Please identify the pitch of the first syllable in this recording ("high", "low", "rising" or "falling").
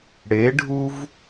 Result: rising